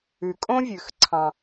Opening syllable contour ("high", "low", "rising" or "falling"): low